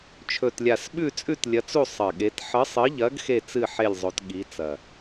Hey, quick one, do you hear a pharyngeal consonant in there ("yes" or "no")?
yes